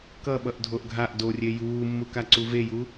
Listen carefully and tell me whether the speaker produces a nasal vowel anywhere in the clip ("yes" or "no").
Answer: no